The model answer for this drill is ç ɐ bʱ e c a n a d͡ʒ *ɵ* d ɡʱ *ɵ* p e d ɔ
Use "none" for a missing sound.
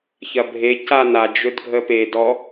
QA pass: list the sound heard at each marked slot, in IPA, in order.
ɵ, ə

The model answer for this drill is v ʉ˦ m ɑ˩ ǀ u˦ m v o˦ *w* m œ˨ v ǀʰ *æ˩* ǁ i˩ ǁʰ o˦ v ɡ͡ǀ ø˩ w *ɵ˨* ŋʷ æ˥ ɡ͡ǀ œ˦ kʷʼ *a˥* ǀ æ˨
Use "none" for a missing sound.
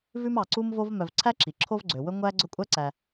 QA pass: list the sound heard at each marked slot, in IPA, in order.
v, æ˥, ɵ˦, æ˥

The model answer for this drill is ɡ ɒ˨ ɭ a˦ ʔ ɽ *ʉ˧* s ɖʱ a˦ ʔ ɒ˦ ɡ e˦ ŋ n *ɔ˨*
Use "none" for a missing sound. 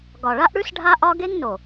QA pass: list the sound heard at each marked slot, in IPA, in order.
ʉ˦, o˨

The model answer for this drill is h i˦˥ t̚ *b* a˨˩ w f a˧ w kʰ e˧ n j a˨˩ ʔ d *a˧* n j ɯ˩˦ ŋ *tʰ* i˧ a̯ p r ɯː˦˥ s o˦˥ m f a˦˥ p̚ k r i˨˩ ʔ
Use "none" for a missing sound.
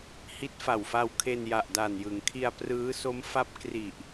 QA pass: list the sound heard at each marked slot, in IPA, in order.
f, a˨˩, kʰ

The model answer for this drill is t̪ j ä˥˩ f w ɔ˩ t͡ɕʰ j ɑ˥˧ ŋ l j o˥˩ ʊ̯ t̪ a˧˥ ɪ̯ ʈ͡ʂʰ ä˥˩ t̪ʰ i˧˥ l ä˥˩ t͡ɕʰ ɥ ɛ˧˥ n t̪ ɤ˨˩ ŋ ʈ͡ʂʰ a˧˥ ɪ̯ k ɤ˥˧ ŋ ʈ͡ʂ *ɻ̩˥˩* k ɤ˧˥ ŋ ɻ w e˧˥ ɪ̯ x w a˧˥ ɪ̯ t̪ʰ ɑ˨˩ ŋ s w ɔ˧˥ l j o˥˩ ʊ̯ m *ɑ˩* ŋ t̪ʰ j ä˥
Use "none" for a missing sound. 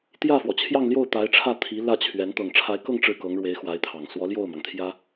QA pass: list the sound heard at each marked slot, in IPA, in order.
ɻ̩˥˩, ɑ˩

